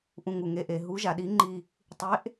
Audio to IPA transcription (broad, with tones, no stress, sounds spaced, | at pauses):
ʔ ũ˧˩ ŋ u˩ ŋ e˨˥ ʔ e˩ ɦ u˨˥ ʒ a˩ ɗ i˨˥ ŋ͡ǃ i˧˩ | tˤ e˨˥ ʔ